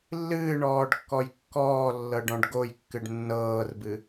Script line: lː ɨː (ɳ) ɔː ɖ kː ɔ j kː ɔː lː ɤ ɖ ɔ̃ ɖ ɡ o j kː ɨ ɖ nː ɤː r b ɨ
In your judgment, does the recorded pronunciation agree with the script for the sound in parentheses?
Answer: yes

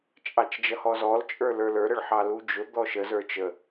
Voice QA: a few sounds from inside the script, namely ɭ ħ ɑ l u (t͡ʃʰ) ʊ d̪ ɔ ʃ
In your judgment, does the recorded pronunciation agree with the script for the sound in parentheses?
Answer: no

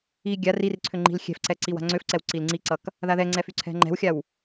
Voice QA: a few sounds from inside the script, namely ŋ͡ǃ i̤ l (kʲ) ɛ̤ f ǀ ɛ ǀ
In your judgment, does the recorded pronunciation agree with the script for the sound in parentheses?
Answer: no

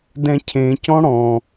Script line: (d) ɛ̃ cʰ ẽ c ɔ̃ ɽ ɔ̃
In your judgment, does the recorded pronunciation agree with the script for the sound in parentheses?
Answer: yes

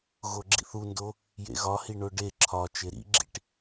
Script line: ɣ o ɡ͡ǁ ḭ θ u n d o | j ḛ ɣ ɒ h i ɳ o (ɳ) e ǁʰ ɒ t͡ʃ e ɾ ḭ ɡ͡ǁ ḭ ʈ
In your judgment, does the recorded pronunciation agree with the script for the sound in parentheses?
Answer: no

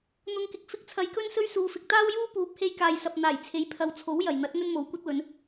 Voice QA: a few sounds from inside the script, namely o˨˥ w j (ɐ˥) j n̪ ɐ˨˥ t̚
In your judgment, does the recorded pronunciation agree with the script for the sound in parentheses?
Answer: no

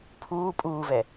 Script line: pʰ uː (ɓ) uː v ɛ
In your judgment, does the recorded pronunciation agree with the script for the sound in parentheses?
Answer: no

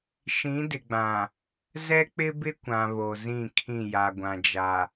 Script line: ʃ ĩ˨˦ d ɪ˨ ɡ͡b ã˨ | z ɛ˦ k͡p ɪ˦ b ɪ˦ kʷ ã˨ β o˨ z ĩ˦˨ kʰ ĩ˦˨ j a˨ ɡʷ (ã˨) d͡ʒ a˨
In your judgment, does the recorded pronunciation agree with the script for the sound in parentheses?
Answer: yes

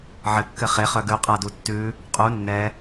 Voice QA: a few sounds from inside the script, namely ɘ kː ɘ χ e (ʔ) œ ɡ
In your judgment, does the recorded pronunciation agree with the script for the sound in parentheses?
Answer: no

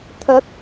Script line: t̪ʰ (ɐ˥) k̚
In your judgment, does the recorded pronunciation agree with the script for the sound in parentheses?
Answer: no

